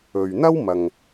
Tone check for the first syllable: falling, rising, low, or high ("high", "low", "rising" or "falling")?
low